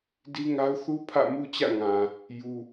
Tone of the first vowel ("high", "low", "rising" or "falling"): high